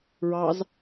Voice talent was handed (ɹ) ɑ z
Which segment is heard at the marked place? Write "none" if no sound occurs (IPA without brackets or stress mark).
ɹ